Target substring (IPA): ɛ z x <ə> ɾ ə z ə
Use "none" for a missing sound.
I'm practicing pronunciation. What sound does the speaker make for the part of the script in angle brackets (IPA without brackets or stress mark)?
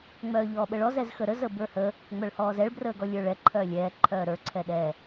ə